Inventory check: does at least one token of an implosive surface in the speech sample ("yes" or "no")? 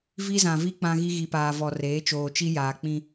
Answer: no